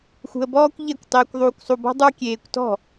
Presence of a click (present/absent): absent